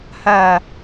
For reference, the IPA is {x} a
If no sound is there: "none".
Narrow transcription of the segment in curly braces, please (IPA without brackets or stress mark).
h